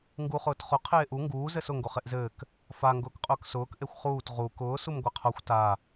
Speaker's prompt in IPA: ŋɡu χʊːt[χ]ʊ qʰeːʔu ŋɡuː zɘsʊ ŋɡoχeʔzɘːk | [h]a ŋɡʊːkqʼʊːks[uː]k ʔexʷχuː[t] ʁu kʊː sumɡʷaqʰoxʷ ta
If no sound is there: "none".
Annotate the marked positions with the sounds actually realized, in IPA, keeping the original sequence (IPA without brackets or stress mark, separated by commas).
χ, f, ʊː, t